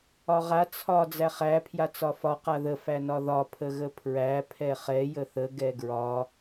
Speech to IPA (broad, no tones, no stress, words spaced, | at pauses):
ɒʁa t͡sʰɒ d͡zæχæ pʰjat͡sɒfɒ qaðə fænɒðɒ pʰəɣəpʰɹæ pʰɛχɛ jəθə ɡɛɡɹɒ